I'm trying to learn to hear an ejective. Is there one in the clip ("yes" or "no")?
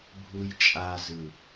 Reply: yes